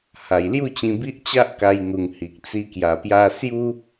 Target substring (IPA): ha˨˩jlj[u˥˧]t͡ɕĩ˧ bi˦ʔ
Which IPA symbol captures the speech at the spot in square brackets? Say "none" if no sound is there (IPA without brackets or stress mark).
u˥˧